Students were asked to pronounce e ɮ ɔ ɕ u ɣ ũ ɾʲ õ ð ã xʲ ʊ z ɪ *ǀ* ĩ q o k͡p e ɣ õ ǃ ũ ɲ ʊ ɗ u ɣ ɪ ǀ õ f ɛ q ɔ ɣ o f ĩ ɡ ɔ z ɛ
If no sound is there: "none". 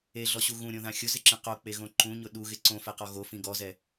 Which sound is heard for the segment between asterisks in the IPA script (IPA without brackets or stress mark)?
ǁ